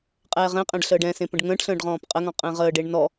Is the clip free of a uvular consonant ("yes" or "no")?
no